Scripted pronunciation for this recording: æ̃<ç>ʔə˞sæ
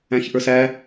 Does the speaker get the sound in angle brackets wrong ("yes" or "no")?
no